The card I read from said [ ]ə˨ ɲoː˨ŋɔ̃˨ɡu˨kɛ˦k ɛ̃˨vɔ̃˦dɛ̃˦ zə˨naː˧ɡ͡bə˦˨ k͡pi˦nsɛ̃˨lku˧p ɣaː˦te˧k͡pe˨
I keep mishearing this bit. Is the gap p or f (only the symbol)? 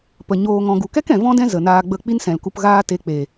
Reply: p